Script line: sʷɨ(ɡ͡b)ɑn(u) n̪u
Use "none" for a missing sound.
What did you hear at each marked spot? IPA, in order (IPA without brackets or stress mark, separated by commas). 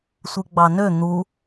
ɡ͡b, ø